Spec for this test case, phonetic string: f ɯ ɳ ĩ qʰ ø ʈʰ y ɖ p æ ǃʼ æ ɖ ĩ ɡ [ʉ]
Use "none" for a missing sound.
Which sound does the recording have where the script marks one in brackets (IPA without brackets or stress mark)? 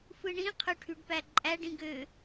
ø